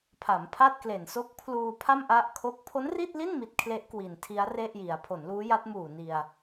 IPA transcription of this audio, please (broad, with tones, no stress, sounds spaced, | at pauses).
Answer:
pʰ a˩˦ m pʰ a˥˩ t̚ k l e˨˩ n s o˦˥ k̚ pʰ l uː˧ pʰ a˥˩ m ʔ a˥˩ ʔ kʰ o˥˩ k̚ pʰ o˦˥ n r i˥˩ t̚ l i˥˩ n m i˦˥ t̚ kʰ l e˦˥ ʔ k w i˨˩ n tʰ i˦˥ a̯ r e˥˩ ʔ j i˩˦ a̯ pʰ o˩˦ n l uː˦˥ j a˦˥ t̚ m uː˨˩ n i˧ a̯